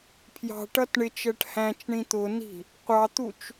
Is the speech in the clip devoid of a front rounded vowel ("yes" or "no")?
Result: yes